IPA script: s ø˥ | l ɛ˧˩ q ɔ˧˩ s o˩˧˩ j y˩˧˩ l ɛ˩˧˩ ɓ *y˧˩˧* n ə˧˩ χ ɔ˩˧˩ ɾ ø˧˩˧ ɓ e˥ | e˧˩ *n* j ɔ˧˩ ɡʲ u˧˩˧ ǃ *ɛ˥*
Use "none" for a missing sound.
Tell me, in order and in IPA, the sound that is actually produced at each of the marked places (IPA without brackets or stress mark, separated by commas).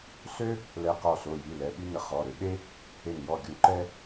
y˥, n, ɛ˥